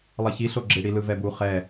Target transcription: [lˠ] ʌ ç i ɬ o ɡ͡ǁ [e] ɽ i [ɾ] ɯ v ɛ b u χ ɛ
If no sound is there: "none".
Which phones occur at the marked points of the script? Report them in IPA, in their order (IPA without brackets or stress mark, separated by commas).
lˠ, e, l